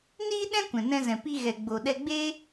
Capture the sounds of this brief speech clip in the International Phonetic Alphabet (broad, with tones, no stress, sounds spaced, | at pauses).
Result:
n iː˦ ɗ ɛ̃˦ kʷ ɛ̃˨ n ɛ̃˧ z ɛ̃˨ p i˧ ɣ ɛ˨ ɡ͡b o˨ ɗ ɛ˧ ɡ͡b eː˦